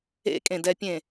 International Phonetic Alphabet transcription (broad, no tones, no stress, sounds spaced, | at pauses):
ḛ kʼ ẽ d ɛ pʲ ẽ